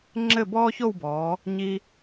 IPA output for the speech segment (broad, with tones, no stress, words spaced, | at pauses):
ŋ͡ǁɘ˥˧bɔː˥ço˥˧wbɔː˩˧ | ɲi˧